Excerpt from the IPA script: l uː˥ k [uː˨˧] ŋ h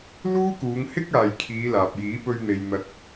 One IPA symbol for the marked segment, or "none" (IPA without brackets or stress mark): uː˨˧